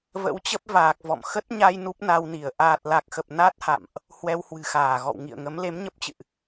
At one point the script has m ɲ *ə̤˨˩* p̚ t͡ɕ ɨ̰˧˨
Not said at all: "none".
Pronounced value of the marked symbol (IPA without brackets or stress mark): ə˦˥